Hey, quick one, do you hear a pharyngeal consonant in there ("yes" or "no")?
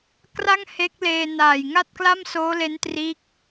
no